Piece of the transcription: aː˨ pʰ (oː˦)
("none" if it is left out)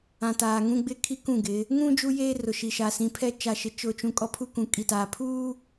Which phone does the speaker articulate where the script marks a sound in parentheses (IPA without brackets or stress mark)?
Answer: uː˦